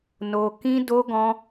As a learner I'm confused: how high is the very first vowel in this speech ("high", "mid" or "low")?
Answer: mid